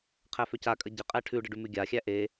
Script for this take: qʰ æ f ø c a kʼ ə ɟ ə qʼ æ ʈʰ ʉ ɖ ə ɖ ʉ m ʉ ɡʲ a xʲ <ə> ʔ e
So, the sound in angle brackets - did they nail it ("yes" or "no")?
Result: no